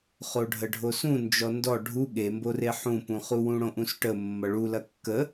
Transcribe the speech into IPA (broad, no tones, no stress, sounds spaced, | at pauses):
χ o ɖʱ ə ɖʱ o s ũ n d͡ʒ ɔ n d ɔ ɖʱ u ɠ e m b o r e ħ ũ p ũ χ u w ũ ɽ õ ʔ ũ s ʈ ə mː ʌ ɭ u l ɐ kː ə